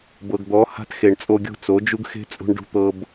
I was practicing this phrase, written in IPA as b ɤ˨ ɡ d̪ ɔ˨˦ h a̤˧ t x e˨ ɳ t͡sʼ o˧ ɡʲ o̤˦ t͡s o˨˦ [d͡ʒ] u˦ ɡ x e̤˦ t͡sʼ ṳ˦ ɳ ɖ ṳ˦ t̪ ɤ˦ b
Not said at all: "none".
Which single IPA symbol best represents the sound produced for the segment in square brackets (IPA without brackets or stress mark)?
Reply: d͡ʒ